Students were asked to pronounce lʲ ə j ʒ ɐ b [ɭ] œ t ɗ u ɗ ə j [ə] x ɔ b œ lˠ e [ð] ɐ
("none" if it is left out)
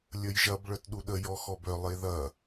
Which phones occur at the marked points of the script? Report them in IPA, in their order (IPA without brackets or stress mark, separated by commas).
ɭ, ɔ, ð